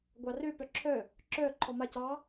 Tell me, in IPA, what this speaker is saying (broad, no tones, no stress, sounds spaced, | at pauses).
ɡʷ ɑ r ø p œ ǁʰ œ | ǁ œ ǃʰ ɔ m a c ɑ